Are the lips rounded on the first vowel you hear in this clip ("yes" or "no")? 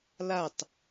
no